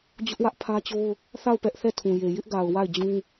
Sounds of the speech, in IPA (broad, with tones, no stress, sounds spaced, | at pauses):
d͡ʑ ʊ˦ ʔ w ä˦ ʔ pʰ ä˦ t͡ɕ o˦ ʊ̯ | θ a˦˨ ʊ̯ p ɛ˦ ʔ θ ɛ˦˨ tʰ ũ˨ j e˨ j ɪ˦ ʔ ɡ a˨ ʊ̯ w a˦˨ ɪ̯ d͡ʑ ũ˦